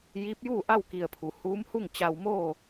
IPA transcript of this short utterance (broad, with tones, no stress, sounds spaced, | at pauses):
j iː˧˥ p̚ j uː˥˨ ʔ a˥˨ w k i˧˩ ə̯ pʰ u˩ h uː˧˥ m h u˥˨ ŋ t͡ɕ a˧ w m oː˥˨